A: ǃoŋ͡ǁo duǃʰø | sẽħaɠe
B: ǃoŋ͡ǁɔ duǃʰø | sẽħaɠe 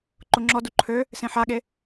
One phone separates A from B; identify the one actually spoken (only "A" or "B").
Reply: B